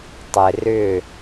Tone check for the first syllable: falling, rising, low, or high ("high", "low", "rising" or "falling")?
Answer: low